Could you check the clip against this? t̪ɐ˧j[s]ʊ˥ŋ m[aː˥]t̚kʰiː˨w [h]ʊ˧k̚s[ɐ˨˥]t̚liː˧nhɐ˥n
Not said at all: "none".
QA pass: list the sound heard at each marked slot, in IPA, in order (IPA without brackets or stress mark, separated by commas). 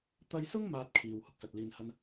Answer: s, aː˥, h, ɐ˨